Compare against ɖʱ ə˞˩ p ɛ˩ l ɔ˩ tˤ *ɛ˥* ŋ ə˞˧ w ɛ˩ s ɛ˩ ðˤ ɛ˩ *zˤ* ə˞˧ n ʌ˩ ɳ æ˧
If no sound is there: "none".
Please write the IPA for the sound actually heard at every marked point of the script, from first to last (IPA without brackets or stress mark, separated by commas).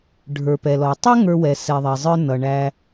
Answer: ɛ˥, zˤ